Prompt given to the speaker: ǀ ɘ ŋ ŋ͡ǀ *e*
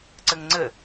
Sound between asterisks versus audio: incorrect: ɘ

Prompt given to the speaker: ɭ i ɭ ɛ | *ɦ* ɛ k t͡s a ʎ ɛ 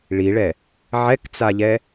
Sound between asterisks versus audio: incorrect: ʕ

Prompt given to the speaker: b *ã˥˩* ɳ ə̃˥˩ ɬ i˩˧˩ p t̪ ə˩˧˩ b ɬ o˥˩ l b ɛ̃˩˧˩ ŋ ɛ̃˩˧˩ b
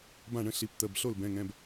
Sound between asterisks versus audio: correct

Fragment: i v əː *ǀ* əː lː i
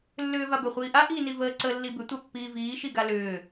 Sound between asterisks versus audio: correct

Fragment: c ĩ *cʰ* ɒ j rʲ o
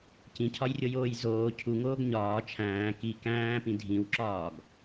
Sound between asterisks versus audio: correct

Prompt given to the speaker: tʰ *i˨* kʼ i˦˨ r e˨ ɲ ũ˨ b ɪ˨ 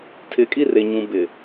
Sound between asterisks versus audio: incorrect: ɪ˨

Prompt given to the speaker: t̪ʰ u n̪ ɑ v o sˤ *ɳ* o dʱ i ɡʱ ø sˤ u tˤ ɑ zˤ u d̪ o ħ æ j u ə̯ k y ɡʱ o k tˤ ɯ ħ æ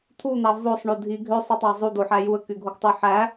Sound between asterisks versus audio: correct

